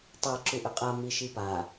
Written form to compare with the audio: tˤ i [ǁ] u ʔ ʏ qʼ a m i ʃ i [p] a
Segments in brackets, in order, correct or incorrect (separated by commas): correct, correct